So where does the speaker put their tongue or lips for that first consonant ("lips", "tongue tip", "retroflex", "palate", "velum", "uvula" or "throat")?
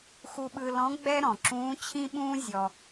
velum